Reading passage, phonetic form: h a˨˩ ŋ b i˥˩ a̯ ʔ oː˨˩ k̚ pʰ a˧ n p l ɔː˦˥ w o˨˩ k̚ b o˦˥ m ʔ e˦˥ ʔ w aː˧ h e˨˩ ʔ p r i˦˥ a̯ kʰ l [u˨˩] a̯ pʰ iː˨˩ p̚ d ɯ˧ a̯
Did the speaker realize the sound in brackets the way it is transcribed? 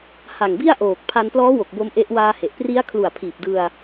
yes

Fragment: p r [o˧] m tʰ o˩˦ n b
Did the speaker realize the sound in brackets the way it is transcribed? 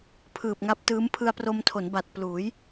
yes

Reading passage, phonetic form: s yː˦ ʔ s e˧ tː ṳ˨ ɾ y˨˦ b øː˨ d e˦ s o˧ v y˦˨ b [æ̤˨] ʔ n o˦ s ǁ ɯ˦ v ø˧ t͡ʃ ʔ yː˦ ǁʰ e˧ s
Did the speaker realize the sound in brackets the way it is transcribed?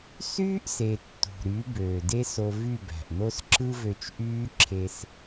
yes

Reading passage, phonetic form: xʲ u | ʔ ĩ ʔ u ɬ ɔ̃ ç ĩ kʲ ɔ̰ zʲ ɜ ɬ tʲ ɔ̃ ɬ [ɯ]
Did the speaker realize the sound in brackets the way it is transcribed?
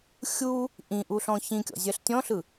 yes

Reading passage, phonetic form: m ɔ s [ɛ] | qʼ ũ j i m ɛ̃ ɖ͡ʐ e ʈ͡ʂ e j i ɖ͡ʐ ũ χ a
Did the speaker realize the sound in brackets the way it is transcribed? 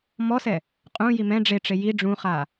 yes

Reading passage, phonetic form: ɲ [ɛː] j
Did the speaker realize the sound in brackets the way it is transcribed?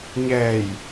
yes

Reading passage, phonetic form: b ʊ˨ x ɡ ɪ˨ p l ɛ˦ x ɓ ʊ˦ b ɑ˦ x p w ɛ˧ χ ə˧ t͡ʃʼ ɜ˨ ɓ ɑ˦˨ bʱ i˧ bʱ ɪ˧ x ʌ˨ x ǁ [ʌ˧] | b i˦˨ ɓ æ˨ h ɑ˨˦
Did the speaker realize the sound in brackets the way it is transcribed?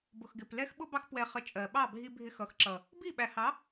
no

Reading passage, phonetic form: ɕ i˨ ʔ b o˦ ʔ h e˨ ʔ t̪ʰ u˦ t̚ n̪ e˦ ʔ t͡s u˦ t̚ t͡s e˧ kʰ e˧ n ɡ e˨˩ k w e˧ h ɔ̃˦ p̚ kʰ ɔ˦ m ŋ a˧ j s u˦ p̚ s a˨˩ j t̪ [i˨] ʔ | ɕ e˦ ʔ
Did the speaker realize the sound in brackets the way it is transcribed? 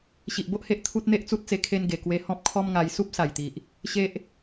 yes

